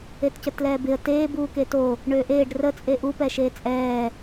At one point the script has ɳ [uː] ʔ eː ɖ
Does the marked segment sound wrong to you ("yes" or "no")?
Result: yes